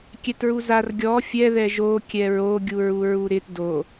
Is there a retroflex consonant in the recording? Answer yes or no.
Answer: no